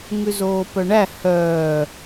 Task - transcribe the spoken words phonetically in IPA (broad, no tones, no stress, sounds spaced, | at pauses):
ŋ ʉ z oː p œ ɳ æ h œː